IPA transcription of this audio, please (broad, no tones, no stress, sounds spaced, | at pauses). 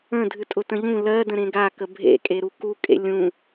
ə̃ dʱ ɨ tʼ ʊ t ə̃ ʎ ũ l ɜ d ə̃ ɾ ẽ ɡ a k ə bʱ ḛ kʼ e ɾ u k u kʼ ḛ lʲ ũ